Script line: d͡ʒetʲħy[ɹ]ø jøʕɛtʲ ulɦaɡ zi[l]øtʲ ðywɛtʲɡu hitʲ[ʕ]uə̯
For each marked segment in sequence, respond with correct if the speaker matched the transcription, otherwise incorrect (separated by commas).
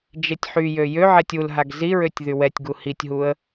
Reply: incorrect, incorrect, incorrect